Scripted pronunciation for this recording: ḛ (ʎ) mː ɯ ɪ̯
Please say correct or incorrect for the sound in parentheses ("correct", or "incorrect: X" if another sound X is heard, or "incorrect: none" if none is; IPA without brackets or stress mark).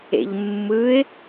correct